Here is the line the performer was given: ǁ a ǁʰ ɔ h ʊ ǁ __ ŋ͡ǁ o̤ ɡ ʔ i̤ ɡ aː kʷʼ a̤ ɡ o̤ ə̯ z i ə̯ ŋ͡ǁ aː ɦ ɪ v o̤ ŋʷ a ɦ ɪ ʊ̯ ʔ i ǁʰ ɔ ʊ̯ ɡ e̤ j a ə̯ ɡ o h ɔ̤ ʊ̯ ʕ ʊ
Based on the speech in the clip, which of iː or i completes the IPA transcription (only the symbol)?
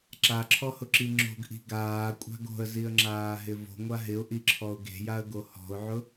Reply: i